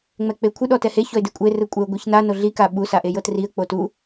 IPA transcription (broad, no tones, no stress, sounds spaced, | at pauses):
ŋ͡m ɛ k͡p e kʷʰ ɯ ɗ ɔ t ɛ h e ç ɔ ɪ̯ d e kʷʼ e r ɯ kʷʼ ɛ ʊ̯ ɡʷ e ç n a n o ɮ i k a ɓ u s a ʔ e j ɤ t r i ə̯ k͡p o t u